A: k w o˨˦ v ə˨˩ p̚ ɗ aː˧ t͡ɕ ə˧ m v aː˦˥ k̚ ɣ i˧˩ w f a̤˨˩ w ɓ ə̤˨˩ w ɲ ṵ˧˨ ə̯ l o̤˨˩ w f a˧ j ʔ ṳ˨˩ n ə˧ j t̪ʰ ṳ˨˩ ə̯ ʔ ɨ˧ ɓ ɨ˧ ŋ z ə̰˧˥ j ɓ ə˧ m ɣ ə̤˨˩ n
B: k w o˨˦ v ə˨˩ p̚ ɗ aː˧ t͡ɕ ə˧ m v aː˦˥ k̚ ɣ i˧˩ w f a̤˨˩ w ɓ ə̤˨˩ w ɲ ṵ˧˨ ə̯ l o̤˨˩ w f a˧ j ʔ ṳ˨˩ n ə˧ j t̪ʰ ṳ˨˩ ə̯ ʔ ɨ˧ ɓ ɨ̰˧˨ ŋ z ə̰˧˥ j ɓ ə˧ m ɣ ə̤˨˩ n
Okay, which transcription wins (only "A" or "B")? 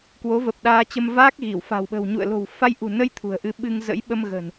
A